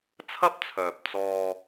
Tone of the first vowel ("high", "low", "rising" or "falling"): high